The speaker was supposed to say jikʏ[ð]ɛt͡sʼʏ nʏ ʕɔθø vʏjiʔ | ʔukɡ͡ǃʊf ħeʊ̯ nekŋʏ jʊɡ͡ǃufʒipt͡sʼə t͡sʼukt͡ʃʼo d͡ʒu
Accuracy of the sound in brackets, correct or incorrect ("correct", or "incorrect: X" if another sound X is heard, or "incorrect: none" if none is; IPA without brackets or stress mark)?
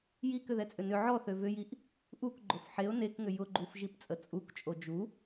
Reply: correct